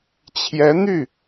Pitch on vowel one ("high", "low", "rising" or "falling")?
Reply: rising